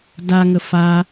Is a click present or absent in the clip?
absent